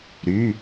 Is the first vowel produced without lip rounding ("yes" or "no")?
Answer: no